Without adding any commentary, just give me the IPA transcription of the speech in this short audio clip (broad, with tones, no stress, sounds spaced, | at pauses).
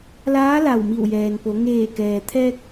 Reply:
l aː˧˥ l a˧˩ w m i˧˩ w j ɛː˩ n p o˩˧ ŋ eː˧˩ k ɛː˩ t̪ʰ ɛː˧ k̚